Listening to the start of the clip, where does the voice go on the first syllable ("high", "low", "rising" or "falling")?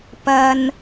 low